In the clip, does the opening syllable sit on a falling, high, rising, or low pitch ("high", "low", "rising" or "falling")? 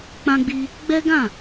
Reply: high